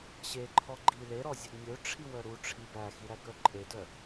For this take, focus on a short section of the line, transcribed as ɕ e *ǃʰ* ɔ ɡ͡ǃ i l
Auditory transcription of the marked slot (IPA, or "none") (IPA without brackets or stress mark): ǃʰ